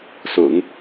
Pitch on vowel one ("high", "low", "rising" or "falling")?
low